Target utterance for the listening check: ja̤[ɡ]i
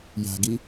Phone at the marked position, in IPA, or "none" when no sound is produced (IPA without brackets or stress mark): ɡ